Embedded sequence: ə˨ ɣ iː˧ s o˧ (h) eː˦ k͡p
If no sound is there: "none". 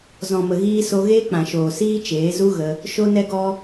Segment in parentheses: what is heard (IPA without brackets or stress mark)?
ɣ